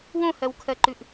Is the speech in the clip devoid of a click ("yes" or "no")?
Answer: no